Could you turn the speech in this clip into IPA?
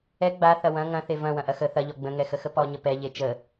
ɛ ɡ͡b a θ ɐ w ɐ̃ ŋ ɐ̃ θ e v ɐ̃ w ɐ̃ ʔ ɐ x ə θ ɐ ʎ ɔ ɡ͡b ə̃ ŋ ɛ x ə x ə p ɔ ɲ ə p ɛ ʎ e t͡ʃ ə

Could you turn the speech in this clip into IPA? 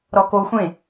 ɾ ɔ k o xʷ ẽ

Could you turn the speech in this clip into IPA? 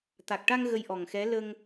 t̪ a˨˩ k̚ ʈ a˧ ŋ ɣ ə˧ j ʔ ɔ˨˩ ŋ x ɛ˧˥ l ə˧ ŋ

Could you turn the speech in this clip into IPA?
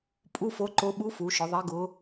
pʼ u˧˥˧ f o˧˥ ǃ o˧˥ ɓ u˧˥ f u˩˧ ʃ ʊ˩˧ ðˤ e˧˥ ɡ ʊ˧˥

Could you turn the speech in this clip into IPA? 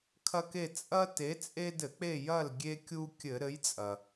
kʰ ɐ˦ k e˦˨ t͡sʼ ɐ˦ t e˨˥ t͡sʼ e˦ d ɘ˧˩˧ k͡p e˦˨ j ɐ˦˨ l ɡʲ e˦ kʲ u˦ kʲ ɘ˧˩˧ ɾ ɘ˨˥ j t͡sʼ ɐ˩

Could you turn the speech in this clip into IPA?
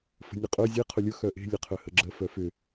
f ə̤ nʲ ə qʼ œ zʲ e qʰ ʊ lʲ ʊ x œ ʔ e̤ lʲ ə qʰ œ h ə ɡ͡ǁ ə f œ f ʏ

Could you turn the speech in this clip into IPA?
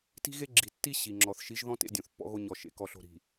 t i̤˦ ɣ e˦ ɡ͡ǁ i˨ tː i˦ ɕ i˨ ŋ͡ǁ ɔ˨ θ ʃ i˨˦ ʒ ð ɔ̃˦ t ḛ˦ dʲ õ˨ θ pː ɔ̰˦ ɣ o˦ ɲ ɔ˨ ʃ ḛ˨ k ɔ˨ ɬ o̤˨ ɾ i̤˨

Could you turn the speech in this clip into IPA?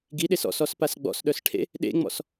ɡ i ɗ e s ɔ̰ s ɔ s p a s ɡ͡b ɔ̰ s ɗ œ s ʈʰ ḛ | ɗ ḛ ŋ͡m ɔ̰ s

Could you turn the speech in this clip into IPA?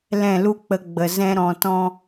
l ɛ̃˦˨ l u˦ k͡p ə˧ ɡ͡b ə˨ z ɛ̃˦ ɾ ɔ̃˧ t ɔ̃˦

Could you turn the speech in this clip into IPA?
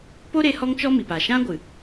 p o˦ ɾ e˧ h ɔ˦ ŋ t͡ʃ ɔ˦ m i˨ p a˨ ʃ ã˦ ɡʷ ɨ˨

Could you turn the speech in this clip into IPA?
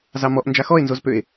z ɑ m ɔ ʔ n d͡ʒ a x ɔ e̯ n z o z p ø e̯

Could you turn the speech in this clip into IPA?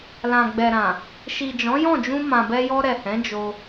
l ã˨ ɡ͡b ɛ˨ ɾ ã˨ | ʃ i˨ d͡ʒ ɔ̃˨˦ j ɔ̃˦˨ d͡ʒ ũ˧ m ã˨ b ɛ˧ j ɔ˧ ɾ ɛ˨ h ɛ̃˨˦ d͡ʒ o˧

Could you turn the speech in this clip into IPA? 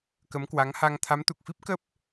k ə˨˦ m k w a˨˦ ŋ h a˧ ŋ t̪ʰ a˨˦ m t̪ u˨˩ k̚ f i˦˥ p̚ k ə˦˥ p̚

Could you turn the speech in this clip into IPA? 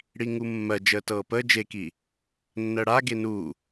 ɽ i ŋ u mː ɜ d͡ʒ əː t ɤː p əː d͡ʒ e k i | nː ɜ ɽ a ɡ e n u

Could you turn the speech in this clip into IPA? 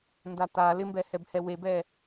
n d a t a l ɪ m b ɛ h ɛ b h ɛ w e b ɛ

